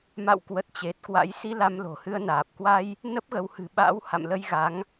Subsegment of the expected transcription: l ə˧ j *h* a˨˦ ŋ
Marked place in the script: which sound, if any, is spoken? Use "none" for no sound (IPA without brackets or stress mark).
ɣ